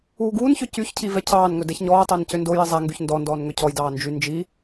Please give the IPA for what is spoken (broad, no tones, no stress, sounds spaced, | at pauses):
uː ɡ uː n ç ø c y ç cʰ i v ɛ cʰ ɑː n ŋ ɵ d ɛ ç ɲ ɔː tˤ æ n c ø n d o j i zˤ æ ŋ ɡ y ç n d ɔ n d ɔː n ŋ ø cʰ ɔ j d ɑː n d͡ʒ y n d͡ʒ i